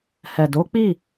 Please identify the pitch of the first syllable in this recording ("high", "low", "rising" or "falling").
low